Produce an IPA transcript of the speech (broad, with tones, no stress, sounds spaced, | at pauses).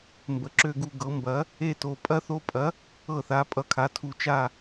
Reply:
m b ə˩˥ ǁ ø˦˨ ɡ u˦˨ ɡ ɤ˩˥ m b ɐ˩˥ | e˦˨ t o˨˩ pʼ ɐ˦ θ o˦ pʼ ɐ˩˥ | ɤ˦˨ θ a˩˥ pʼ ʌ˨˩ kʰ a˩˥ tʰ u˨˩ t͡ʃ a˦˨